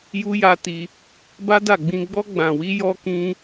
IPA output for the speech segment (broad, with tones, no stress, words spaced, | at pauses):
ju˦ja˦ti˦ | ba˦da˦˨ ɡ͡bĩ˧ɡ͡bɔ˦ ɡ͡bã˧wi˦jɔ˦ kĩ˦